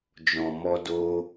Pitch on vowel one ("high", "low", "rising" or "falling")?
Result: low